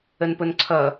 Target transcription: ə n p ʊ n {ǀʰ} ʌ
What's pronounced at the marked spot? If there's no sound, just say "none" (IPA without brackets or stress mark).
ǀʰ